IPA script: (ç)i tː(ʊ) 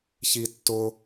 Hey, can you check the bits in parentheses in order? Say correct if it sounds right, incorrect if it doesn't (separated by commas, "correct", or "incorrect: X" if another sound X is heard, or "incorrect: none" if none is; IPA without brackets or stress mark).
correct, correct